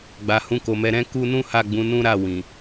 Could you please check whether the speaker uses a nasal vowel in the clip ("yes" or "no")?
yes